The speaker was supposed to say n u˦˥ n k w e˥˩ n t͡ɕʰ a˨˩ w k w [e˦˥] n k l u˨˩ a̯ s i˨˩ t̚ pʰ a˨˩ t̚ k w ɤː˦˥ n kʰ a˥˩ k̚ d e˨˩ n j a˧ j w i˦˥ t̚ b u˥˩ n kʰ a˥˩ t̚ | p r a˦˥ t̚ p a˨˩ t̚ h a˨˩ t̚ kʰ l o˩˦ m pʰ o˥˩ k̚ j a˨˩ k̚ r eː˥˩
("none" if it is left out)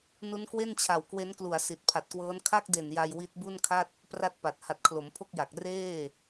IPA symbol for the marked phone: e˦˥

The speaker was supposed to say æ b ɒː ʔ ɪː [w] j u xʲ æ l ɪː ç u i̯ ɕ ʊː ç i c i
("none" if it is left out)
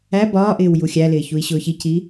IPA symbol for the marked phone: w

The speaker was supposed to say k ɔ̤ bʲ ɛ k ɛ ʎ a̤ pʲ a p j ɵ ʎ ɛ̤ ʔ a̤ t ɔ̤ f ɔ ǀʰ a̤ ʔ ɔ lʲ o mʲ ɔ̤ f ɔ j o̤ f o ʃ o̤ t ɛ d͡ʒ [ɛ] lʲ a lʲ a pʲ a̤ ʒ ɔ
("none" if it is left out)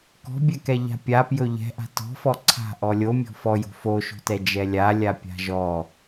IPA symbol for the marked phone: ɛ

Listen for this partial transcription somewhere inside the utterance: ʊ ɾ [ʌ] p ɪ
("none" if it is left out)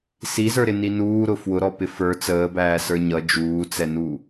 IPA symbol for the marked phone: ɔ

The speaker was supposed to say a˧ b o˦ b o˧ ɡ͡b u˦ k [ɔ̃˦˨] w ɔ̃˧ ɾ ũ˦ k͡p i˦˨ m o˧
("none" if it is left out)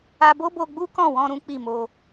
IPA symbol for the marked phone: ɔ̃˦˨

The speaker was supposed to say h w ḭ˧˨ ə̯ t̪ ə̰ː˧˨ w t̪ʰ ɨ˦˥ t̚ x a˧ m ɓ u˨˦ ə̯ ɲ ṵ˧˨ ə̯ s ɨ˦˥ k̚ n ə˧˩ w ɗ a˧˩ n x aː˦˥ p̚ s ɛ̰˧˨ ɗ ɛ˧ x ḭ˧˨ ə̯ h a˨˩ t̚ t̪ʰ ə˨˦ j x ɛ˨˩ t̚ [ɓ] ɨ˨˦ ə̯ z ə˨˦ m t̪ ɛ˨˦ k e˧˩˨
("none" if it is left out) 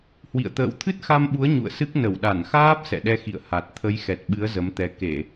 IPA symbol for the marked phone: ɓ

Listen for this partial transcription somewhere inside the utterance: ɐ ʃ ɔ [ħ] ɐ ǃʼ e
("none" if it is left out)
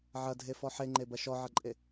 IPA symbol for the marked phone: ʕ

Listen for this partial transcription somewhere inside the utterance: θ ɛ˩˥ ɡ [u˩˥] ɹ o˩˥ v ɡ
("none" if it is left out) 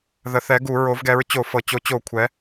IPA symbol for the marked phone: u˧˩˧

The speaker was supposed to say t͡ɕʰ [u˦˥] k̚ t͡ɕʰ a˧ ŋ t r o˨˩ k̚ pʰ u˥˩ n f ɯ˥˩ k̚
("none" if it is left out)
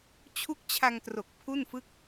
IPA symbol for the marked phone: u˦˥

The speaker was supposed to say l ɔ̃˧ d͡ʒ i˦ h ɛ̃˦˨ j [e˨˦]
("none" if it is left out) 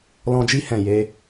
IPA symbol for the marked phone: e˨˦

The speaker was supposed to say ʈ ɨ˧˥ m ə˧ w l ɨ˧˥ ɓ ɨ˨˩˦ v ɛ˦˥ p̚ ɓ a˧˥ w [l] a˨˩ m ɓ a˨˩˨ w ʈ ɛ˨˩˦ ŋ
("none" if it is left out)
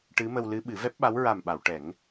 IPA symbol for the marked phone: ɹ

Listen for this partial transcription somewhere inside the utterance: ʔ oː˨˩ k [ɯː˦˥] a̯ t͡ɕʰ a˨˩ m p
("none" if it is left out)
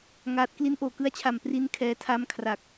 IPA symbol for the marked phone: ɯ˦˥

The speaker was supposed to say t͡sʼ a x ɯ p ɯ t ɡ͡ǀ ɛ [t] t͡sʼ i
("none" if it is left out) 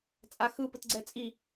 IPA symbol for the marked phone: none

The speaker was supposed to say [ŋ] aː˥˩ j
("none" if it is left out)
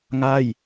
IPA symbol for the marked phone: ŋ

